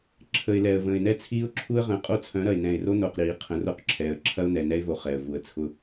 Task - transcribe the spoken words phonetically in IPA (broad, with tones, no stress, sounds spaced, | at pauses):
ǁʰ ə˨ ɪ̯ l ɛ˨ ə̯ v ə̃ː˨ ɪ̯ n ɛ˦ t͡sʰ iː˦ ʊ̯ ǁʰ u˦ ə̯ ʁ ə̃ː˨ qʼ o˦ t͡sʰ œ̃˨˦ ɾ ɐ˨ ɪ̯ n ɛ̃˨ ɪ̯ r o˦ n o˨ q ɾ iː˨ qʰ ə̃˨˦ r o˦ q ǁʰ ɛː˨ ə̯ ǁʰ ɐ˦ ʊ̯ n ɛ˨ n ɛ˦ ɪ̯ v o˨ χ ɛ˨ ə̯ v u˨ ə̯ t͡sʰ ʊ˦